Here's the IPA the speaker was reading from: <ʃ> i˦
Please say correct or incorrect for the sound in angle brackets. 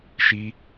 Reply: correct